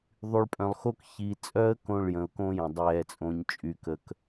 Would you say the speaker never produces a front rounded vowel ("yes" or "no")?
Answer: no